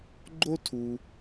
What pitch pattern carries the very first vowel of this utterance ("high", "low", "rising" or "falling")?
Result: high